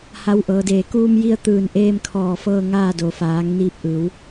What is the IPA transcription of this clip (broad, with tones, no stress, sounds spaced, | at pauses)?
h a˧˥ w ʔ ɤː˩˧ d eː˧˩ k uː˧ m j i˧ ə̯ t̪ ɯː˧˩ n ʔ eː˧ m kʰ ɔː˧˩ f ɤː˧ ŋ aː˥˨ d o˩ f aː˩˧ ŋ n iː˧ p̚ ʔ ɯː˩˧ w